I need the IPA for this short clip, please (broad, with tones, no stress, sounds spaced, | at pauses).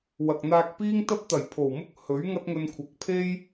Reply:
w ɐ˨ k̚ n̪ aː˧ k̚ p iː˥ ŋ t̪ ɐ˥ p̚ t̪ ɐ˨˩ j pʰ o˨˩ w m ʊ˥ k̚ h ɵ˨˥ ɥ ŋ ɐ˥ t̚ ŋ ɵ˧ n kʷʰ ɐ˨˥ k̚ pʰ e˥ j